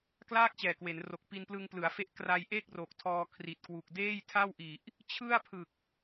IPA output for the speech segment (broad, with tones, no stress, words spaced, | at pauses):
klaː˥˩k̚t͡ɕɛː˨˩kwe˩˦nro˨˩k̚ pi˧nplɯ˧ŋplɯ˩˦a̯fe˦˥ʔ kra˧jʔe˥˩k̚ ro˨˩k̚tʰɔː˧ kʰri˨˩t̚kwu˨˩k̚ deː˥˩jtʰa˥˩wʔi˨˩ʔ | t͡ɕʰɯ˥˩a̯pʰɯ˨˩k̚